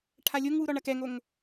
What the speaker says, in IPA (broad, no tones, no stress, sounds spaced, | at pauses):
ʈʰ a lʲ o ŋ w u ɾ ɔ ɳ ɐ k ɛ ŋ o ŋ